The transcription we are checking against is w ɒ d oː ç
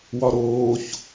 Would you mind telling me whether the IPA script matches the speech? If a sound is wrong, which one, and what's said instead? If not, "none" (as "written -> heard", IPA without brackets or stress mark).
d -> ɾ